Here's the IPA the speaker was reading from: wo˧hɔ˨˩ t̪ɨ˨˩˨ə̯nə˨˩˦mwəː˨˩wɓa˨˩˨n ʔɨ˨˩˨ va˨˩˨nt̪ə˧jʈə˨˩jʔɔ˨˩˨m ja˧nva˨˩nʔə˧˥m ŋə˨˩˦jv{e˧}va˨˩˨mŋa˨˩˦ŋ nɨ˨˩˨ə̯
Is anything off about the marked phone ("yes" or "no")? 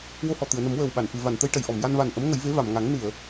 yes